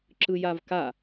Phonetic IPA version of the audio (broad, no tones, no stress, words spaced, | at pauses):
ǁɯjavka